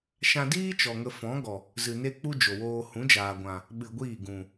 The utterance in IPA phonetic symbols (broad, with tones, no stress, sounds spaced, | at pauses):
ʃ ã˧ d iː˦ t͡ʃ ɔ˨ ŋ ə˧ f ɔ̃˨˦ ɡ ɔ˨ | z ɨ˨ n e˦ k͡p u˦ d͡ʒ o˨ w oː˧ h ũ˨˦ d͡ʒ aː˨ ɡʷ ã˨ | ɓ ɨ˧ ɡʷ iː˦˨ ɡ ũ˨